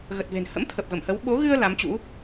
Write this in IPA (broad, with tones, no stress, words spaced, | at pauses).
ɣə˨˩t̚ve̤˨˩n hə̰˧˥mt̪ʰə˨˩p̚ ɣə˧˩mhə˨˦w ɓo˨˦ɣɨ˧ə̯ la˨˦mt͡ɕṵ˧˥